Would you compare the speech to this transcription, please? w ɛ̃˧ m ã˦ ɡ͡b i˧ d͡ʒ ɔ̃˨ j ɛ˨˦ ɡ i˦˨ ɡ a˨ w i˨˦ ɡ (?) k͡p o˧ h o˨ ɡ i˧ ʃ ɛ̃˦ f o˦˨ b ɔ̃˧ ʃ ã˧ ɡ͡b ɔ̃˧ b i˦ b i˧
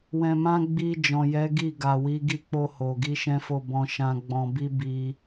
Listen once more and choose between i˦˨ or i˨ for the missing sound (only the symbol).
i˦˨